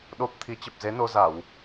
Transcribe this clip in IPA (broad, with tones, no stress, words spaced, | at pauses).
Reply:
ɗo˦˥p̚ t̪ʰi˨˦t͡ɕə˨˩p̚ze˨˦no˧ za˧˩˨w